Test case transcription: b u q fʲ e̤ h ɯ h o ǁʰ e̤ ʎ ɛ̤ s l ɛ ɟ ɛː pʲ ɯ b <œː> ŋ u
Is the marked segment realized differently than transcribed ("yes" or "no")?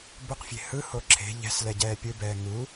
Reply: yes